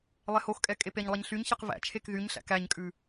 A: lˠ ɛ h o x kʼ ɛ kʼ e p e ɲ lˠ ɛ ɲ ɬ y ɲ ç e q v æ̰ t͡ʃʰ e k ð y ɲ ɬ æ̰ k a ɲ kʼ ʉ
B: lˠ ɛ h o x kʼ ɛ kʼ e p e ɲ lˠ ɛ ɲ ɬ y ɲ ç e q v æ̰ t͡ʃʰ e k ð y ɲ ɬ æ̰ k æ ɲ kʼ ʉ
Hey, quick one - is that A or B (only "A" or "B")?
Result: B